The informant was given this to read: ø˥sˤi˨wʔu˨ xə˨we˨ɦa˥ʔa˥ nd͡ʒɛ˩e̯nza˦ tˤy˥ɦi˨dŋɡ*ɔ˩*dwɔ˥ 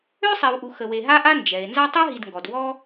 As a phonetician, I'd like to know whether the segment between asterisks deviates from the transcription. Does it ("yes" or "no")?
no